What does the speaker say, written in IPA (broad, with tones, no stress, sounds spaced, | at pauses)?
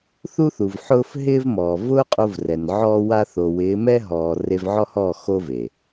θ u˧ θ u˨ v ħ ʊː˦ f ɦ ɪː˦ v m ɔː˨ v ʊː˦ qʼ o˧ v r ɛ˨ n ʕ ɔː˦ w a˦ θ o˨ w ɪː˨˦ m ɛ˦ ɦ ɔː˨ r e˧ v ʕ ɔ˦ h ɔː˦˨ x o˦ v e˨